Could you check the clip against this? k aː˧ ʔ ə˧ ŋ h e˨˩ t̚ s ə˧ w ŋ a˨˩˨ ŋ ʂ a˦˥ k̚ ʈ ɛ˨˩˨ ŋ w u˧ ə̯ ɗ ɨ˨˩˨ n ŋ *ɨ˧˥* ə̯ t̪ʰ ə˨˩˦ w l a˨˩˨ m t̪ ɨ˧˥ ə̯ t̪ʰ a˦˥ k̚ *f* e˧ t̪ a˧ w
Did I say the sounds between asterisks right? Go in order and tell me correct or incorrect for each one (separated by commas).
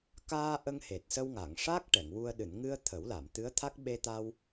incorrect, incorrect